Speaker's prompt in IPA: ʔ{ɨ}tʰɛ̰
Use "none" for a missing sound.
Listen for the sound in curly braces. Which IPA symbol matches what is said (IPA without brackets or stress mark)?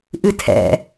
ɨ